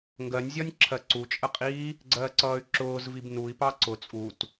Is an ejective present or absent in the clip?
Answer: present